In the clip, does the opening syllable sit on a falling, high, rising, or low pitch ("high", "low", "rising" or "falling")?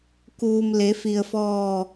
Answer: low